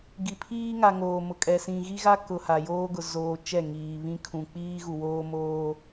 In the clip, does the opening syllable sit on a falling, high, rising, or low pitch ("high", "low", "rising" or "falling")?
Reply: low